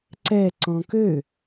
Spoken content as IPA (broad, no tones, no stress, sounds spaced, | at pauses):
ǀ ɛ ǀ ɔ̃ k ø